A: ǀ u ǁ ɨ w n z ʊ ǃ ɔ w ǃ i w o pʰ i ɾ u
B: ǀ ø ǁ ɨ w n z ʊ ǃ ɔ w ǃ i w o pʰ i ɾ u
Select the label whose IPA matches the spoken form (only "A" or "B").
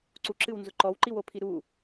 A